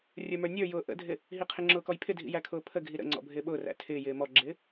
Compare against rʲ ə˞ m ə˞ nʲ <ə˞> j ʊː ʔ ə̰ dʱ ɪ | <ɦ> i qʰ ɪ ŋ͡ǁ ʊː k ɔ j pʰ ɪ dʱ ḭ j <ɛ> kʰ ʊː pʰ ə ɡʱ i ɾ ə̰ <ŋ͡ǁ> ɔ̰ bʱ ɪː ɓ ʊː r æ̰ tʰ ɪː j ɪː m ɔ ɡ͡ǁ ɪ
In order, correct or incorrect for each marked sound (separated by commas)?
correct, correct, incorrect, incorrect